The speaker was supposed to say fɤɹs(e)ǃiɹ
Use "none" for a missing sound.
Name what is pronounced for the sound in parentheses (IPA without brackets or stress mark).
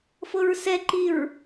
ɛ